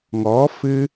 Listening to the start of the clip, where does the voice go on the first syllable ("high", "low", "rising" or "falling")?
rising